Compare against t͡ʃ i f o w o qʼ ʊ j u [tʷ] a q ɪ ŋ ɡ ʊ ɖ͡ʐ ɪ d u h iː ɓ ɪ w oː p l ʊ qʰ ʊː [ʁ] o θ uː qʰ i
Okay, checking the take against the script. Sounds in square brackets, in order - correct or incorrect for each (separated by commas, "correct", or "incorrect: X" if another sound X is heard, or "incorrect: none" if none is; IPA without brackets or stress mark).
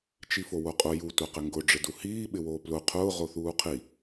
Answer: correct, correct